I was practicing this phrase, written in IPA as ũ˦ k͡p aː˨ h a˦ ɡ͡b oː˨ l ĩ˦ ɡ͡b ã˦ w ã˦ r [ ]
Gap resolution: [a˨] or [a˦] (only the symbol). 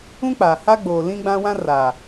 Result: a˨